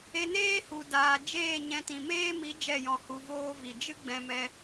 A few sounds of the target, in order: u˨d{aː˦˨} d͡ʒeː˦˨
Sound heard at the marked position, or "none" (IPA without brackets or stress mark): aː˨